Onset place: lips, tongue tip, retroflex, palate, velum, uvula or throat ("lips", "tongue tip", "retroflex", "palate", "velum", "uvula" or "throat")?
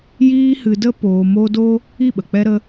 palate